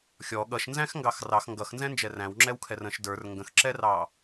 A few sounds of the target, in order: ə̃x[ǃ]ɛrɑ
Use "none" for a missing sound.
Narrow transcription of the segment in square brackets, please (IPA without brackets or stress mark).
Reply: ǁ